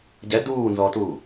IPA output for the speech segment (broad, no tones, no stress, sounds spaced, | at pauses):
ɟ ɛ d uː n z ɔ t uː